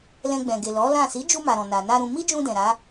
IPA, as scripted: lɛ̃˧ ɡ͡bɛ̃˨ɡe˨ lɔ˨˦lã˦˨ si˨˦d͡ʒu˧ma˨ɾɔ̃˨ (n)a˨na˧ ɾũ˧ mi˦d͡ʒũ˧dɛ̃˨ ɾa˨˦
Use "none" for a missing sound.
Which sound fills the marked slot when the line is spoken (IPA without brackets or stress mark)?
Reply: n